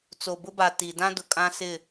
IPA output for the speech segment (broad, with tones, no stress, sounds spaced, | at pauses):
t͡s o˨ b ʊ˦ b a˨ t i˨ d ã˦ d ʊ˨ kʼ ã˦ s ɪ˦˨